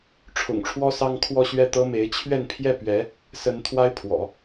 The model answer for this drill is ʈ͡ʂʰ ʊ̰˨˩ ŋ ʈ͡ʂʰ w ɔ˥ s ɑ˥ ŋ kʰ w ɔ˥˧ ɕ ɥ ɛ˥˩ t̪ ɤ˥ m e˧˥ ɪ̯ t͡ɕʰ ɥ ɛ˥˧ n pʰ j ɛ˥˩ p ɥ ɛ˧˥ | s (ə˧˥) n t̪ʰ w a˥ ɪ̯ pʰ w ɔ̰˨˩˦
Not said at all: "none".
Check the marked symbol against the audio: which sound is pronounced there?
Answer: ə˧˥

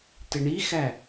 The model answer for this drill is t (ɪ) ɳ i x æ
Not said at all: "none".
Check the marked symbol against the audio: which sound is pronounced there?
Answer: ɪ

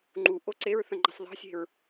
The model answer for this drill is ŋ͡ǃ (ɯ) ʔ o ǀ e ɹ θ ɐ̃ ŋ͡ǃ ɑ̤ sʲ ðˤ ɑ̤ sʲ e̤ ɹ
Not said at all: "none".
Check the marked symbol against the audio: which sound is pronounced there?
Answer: u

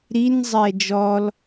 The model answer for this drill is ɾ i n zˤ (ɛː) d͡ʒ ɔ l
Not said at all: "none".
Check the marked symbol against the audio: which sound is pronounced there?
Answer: ɛː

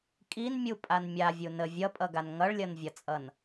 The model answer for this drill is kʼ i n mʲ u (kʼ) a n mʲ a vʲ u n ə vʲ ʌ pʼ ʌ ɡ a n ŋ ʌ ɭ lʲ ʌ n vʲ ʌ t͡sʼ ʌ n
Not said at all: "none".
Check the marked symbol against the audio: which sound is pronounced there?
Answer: pʼ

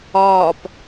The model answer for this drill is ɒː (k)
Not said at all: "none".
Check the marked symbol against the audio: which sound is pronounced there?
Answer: p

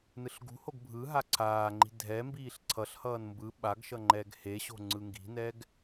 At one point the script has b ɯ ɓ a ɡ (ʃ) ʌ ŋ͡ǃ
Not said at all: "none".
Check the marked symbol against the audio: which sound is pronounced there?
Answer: ʃ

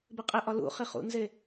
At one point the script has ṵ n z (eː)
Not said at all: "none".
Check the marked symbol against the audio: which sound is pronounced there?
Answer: e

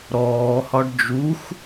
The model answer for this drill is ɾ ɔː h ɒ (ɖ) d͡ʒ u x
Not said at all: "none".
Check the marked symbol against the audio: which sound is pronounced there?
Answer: ɖ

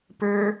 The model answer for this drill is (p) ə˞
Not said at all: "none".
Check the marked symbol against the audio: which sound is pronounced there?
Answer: p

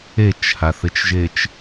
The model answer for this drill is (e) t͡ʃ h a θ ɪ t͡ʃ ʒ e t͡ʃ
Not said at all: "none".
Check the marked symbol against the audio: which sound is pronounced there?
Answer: e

